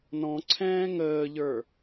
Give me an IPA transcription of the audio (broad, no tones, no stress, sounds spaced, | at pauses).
n ɔ̃ ǀʰ ɛ̃ː ŋ əː ʎ ə˞